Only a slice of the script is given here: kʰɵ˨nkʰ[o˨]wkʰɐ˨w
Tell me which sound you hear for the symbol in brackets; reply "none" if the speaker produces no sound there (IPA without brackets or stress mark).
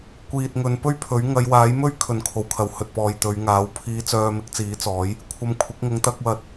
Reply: o˨